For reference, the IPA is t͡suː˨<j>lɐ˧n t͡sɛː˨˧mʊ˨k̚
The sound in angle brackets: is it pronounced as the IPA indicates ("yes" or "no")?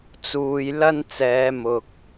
yes